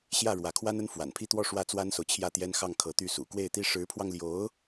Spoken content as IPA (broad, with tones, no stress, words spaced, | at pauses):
ɕjä˥˩ɻwä˧˥kʰwa˥nə˥n fwa̰˨˩npʰi˥˧t̪wɔ˥˧ ʂwä˥˩t͡swa˥nso˨ʊ̯ t͡ɕʰjä˥˩t̪jɛ˥n xɑ˥˩ŋkʰɤ˧˥t̪y˥˩sṵ˨˩ kwe˥˩ɪ̯t̪i˥ ʂɻ̩˧˥pʰwɑ˧ŋljo˧˥ʊ̯